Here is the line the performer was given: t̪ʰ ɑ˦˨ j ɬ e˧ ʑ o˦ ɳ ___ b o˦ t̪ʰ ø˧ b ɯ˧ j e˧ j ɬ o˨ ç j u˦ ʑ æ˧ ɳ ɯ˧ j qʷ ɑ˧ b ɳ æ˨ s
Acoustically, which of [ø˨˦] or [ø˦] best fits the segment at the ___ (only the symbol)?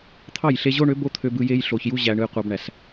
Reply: ø˨˦